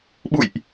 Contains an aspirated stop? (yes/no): no